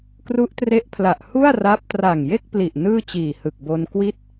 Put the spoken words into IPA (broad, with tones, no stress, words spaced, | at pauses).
kru˦˥ʔtre˦˥ʔpʰla˨˩ʔ hu˥˩a̯ra˦˥p̚ tra˨˩ŋje˥˩k̚pli˨˩ʔ nɯː˥˩t͡ɕiː˨˩hɯ˨˩k̚ bo˧nkwi˥˩t̚